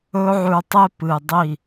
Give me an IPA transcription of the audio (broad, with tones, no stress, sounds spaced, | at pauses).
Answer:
ɵ˦ ʕ ʉ˧ tˤ e˦ p ɨ˨ dˤ i˦˨